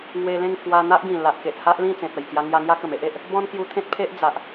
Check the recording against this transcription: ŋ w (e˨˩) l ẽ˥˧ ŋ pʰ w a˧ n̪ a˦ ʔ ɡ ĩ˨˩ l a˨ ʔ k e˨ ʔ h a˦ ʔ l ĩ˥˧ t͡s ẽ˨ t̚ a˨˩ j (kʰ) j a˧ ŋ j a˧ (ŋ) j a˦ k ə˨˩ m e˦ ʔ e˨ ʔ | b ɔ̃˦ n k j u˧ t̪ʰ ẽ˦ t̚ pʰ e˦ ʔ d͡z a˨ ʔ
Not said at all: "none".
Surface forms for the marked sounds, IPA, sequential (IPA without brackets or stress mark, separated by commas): e˧, k, ŋ